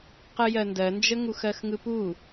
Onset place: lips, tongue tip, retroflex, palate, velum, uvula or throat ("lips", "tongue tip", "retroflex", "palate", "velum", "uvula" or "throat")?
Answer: uvula